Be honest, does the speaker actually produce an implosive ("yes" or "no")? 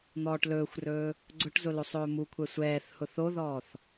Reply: no